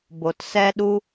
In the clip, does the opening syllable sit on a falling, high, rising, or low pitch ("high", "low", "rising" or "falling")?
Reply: low